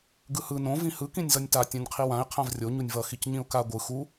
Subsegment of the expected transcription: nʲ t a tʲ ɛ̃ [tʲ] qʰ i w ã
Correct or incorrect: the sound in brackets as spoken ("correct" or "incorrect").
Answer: incorrect